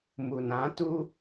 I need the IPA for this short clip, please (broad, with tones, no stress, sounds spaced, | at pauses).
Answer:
m u˨ n ã˨˦ t u˦